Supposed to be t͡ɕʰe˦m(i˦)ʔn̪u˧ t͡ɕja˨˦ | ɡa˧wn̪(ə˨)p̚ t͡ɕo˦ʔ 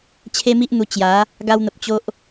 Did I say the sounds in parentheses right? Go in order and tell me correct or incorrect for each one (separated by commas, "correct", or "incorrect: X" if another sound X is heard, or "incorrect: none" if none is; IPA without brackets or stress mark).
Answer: correct, correct